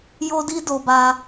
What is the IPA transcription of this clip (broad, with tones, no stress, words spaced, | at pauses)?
jo˧ di˦do˧ba˧